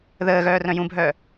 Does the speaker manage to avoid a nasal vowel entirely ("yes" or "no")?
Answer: no